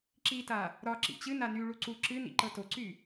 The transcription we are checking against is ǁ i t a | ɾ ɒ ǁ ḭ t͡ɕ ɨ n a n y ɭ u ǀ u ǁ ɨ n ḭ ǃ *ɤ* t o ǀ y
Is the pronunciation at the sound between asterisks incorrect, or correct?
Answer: correct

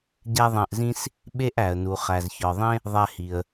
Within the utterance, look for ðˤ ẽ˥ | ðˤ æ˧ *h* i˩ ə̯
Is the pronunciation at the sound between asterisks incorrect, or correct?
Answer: correct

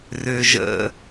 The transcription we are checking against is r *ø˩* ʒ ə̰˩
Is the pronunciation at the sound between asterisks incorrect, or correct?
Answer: correct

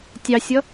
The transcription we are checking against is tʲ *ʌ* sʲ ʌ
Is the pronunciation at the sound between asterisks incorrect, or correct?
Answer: incorrect: ɑ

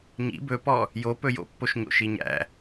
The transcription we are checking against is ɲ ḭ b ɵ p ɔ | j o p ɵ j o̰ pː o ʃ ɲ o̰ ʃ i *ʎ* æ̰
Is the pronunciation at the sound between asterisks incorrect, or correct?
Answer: incorrect: ɲ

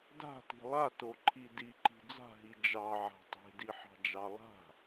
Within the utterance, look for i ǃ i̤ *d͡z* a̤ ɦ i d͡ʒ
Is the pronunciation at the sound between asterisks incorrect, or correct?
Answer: correct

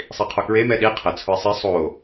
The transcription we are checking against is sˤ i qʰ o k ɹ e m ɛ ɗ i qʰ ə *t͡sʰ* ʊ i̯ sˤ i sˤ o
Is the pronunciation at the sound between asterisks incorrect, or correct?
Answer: correct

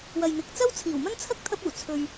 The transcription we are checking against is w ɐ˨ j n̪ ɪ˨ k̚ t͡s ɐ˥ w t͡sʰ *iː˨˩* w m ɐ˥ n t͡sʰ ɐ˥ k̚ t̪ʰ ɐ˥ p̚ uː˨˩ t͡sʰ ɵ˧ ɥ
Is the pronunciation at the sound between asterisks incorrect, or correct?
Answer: correct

